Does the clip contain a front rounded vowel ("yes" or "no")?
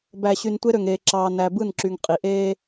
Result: yes